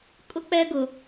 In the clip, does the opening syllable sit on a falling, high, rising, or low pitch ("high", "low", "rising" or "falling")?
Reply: high